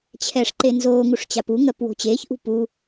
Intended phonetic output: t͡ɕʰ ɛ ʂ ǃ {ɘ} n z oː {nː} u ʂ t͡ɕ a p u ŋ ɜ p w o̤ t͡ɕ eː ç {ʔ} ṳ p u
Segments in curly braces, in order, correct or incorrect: incorrect: e, incorrect: ŋ, correct

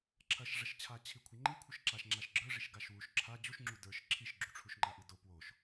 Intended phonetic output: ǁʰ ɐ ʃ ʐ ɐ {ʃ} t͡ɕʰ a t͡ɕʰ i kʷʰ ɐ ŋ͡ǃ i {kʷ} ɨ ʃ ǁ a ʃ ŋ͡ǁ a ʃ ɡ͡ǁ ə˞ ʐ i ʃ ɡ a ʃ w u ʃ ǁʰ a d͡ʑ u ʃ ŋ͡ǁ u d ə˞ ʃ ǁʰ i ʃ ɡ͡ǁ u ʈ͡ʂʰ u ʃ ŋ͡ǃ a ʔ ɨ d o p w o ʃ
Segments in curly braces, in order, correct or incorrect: correct, incorrect: kʷʰ

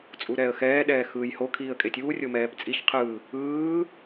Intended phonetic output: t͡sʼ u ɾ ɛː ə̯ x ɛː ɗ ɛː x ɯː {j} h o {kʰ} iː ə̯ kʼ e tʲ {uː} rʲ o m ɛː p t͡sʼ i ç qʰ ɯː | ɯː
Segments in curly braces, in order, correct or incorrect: correct, correct, correct

